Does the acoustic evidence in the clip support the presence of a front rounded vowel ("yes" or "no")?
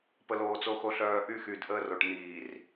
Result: yes